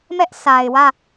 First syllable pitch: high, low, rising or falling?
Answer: high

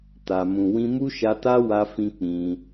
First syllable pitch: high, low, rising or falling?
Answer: low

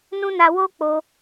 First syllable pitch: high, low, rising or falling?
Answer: high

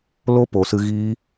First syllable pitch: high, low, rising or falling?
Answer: high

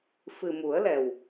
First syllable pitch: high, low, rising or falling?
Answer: low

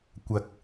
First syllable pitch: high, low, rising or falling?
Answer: low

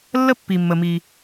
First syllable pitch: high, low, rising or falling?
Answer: high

